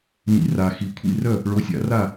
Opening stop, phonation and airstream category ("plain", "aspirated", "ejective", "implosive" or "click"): aspirated